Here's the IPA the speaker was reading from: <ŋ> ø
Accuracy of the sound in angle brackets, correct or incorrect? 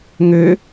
correct